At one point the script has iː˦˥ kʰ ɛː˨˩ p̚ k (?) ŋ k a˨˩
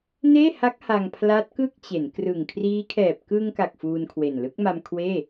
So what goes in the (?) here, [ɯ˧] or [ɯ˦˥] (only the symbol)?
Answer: ɯ˧